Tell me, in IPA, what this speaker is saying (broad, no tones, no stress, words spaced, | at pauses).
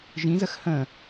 ʒĩzəx hə̃